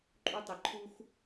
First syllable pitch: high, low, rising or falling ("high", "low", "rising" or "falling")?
high